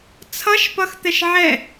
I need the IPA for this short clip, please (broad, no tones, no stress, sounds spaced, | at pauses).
t͡sʰ ʌ ʃ p ʌ x t̪ ɛ ʃ ʕ ɛ